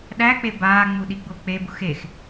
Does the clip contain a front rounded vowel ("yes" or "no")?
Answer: no